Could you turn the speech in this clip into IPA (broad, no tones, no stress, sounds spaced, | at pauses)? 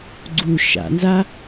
ɡ͡ǀ u ʃ a̰ n z a